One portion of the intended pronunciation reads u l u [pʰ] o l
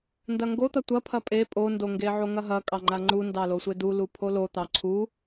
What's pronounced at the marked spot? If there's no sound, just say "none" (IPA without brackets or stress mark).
pʰ